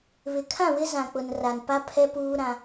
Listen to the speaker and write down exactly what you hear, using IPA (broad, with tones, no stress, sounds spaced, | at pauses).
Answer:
β ɪ˨ kʰ ã˦˨ w ɪ˦ z ã˨ k͡p ʊ˨ n r a˨ n p a˦ pʰ ɛ˦ p uː˦ ɾ ã˦